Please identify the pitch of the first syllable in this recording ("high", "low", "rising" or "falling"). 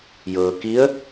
low